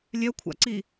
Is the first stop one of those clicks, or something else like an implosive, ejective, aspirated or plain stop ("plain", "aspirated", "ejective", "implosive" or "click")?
aspirated